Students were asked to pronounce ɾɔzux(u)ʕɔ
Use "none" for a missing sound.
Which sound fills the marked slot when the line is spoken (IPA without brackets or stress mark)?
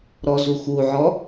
u